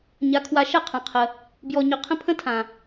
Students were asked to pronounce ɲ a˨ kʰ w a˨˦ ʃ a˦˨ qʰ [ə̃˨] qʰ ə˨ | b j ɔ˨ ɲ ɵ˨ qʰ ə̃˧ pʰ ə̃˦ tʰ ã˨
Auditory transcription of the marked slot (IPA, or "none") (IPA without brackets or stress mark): ã˨